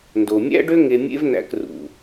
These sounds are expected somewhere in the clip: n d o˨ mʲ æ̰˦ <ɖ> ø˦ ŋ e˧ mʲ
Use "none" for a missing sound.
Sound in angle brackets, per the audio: ɖ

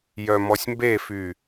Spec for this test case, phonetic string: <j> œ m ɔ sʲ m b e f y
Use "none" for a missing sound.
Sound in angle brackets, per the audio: j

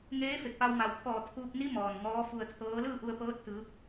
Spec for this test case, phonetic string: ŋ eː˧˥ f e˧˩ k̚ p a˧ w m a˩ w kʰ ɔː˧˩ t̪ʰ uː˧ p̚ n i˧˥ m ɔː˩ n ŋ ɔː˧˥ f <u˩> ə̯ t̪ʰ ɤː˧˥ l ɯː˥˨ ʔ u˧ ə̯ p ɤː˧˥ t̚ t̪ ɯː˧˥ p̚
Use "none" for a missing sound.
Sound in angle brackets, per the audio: u˧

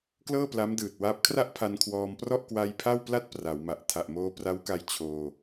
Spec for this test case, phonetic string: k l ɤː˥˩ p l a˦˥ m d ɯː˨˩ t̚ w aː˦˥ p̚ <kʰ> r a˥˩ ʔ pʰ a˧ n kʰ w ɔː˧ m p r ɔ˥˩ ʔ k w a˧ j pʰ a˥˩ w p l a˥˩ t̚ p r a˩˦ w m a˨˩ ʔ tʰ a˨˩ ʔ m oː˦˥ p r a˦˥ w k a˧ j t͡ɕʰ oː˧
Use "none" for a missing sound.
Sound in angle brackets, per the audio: kʰ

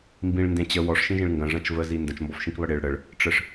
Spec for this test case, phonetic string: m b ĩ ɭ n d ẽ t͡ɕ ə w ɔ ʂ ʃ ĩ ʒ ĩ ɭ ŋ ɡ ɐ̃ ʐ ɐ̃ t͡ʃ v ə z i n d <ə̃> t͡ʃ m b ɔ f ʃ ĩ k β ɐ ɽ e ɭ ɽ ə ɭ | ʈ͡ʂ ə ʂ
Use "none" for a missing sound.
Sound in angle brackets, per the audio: ə̃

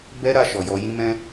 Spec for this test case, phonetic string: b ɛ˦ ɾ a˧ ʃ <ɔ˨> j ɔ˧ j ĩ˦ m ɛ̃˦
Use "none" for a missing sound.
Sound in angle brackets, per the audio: ɔ˨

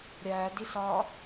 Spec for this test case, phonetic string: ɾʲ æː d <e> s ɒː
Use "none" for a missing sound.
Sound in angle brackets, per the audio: i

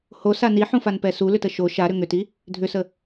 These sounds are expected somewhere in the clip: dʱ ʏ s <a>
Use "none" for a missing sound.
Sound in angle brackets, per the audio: ə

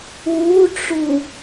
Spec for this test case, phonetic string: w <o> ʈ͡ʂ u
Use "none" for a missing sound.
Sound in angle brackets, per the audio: u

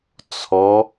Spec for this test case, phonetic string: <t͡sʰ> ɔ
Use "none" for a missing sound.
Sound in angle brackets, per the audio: t͡sʰ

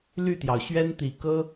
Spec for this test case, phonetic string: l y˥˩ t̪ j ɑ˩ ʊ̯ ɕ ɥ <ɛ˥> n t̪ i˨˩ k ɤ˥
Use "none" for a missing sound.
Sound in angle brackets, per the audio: ɛ˥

